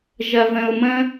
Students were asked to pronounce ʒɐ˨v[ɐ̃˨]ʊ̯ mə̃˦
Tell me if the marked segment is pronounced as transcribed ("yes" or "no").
no